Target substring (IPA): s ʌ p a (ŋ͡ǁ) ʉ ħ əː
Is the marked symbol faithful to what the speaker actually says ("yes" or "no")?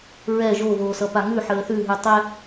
no